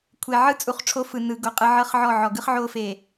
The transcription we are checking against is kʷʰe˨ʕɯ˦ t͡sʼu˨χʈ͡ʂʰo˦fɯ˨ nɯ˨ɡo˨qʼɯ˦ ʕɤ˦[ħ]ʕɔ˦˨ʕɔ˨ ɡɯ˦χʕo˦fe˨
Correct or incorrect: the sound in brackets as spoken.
incorrect: χ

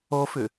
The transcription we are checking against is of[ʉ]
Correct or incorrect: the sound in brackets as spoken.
correct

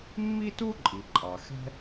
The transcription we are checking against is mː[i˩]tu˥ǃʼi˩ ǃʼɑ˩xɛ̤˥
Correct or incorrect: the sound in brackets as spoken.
incorrect: i˥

